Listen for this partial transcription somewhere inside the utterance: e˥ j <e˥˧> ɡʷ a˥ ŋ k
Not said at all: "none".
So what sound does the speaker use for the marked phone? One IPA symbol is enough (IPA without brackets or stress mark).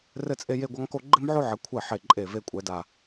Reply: e˥˧